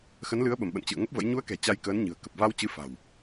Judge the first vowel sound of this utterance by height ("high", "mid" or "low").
mid